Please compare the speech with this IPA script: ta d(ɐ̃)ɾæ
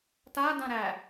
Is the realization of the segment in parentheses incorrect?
yes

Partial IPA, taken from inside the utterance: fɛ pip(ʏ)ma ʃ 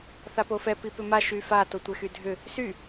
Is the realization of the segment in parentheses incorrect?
no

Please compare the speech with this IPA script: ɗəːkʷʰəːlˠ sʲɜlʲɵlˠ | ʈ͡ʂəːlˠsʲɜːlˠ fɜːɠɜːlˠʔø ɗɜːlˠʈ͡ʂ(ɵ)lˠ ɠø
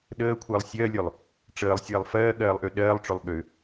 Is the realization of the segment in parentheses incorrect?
no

